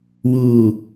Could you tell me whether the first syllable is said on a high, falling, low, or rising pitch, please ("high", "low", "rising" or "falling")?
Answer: low